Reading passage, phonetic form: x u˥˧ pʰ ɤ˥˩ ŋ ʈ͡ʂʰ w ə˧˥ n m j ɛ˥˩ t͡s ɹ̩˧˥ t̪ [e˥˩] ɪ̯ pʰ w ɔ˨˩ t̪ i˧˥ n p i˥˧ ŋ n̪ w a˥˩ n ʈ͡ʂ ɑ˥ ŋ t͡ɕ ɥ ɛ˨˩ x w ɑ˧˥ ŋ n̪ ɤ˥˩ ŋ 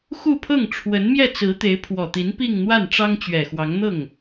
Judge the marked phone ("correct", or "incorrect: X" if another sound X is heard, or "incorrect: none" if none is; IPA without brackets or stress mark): incorrect: e˧˥